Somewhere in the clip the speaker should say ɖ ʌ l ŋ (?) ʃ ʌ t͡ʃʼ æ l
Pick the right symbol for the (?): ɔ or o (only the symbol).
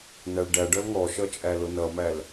ɔ